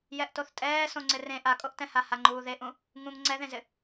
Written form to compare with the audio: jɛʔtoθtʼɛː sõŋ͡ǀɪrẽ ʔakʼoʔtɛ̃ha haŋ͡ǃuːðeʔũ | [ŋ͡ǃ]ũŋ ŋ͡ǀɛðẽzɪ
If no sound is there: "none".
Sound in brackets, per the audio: ŋ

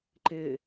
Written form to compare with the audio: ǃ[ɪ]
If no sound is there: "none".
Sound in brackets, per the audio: ɪ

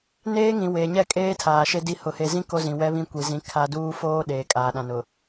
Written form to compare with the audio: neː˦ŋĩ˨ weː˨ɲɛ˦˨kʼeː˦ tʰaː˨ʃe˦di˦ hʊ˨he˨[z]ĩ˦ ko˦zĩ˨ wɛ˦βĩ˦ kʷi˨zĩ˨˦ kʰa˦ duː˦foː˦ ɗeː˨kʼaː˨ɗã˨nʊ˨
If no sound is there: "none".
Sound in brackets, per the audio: z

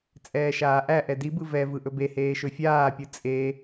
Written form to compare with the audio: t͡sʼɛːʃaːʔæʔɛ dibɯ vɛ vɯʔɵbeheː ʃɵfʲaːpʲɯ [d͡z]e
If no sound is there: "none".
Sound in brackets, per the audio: t͡sʼ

